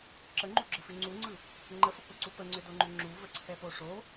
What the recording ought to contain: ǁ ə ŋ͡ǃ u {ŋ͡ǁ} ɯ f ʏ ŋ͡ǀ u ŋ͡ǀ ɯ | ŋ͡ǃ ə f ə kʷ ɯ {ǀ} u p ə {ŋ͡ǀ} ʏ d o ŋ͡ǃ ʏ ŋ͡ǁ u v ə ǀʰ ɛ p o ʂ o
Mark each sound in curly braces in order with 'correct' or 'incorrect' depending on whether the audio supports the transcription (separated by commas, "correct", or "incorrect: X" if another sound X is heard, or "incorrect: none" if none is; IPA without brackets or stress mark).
incorrect: ɡ͡ǁ, correct, correct